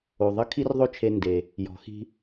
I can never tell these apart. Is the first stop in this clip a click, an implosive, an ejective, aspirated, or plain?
aspirated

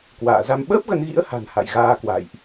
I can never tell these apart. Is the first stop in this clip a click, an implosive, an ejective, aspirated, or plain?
plain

